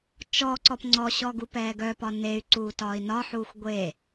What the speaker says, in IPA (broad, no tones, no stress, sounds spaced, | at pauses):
t͡ʃ ɔ ǀ ɔ p ŋ͡ǀ ɔ ɕ ɔ ɡ u p ɛː ɡ œ p ɒ n e y̯ ǀ uː t ɒː i̯ n ɒ ħ uː xʷ ɡʷ e